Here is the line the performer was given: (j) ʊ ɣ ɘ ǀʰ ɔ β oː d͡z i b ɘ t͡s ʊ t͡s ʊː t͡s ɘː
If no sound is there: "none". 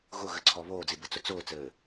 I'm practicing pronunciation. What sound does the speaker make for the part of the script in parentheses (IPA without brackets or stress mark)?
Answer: ɣ